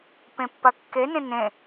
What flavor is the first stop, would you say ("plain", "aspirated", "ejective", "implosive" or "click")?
plain